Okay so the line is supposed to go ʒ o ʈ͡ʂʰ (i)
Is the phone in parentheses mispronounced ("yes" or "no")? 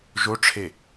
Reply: yes